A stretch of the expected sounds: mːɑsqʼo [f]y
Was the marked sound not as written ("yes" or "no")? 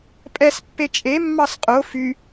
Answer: no